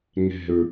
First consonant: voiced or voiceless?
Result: voiced